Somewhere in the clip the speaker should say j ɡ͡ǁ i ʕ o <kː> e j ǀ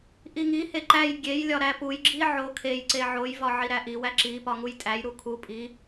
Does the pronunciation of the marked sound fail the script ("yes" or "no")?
yes